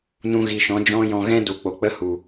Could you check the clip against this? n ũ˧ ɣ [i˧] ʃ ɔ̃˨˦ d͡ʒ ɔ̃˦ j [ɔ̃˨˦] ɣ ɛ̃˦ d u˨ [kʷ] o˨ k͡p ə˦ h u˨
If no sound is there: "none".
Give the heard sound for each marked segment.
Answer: i˨, ɔ̃˧, k͡p

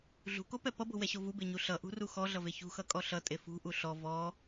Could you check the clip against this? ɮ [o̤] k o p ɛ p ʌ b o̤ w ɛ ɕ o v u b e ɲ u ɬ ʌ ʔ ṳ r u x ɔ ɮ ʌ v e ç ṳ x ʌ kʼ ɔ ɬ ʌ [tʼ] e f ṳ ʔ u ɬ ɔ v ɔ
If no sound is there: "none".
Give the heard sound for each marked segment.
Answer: ṳ, tʼ

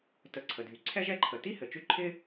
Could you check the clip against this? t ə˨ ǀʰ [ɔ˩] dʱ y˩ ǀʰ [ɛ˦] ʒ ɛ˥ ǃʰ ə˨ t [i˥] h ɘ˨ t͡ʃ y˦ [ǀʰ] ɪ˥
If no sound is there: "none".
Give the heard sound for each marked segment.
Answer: ə˩, ɛ˥, i˥, ǃʰ

